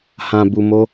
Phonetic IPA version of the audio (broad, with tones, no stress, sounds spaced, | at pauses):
h ã˨ b u˨ m o˧